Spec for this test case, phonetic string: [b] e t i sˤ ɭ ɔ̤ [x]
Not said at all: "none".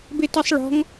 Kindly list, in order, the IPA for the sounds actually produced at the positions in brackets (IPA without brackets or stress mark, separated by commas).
b, ŋ